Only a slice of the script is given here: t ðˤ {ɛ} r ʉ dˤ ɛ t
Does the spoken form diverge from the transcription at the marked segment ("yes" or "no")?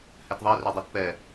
no